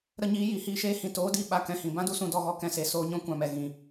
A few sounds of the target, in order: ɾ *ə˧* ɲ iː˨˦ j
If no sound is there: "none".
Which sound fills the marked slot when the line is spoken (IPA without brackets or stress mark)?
ə˧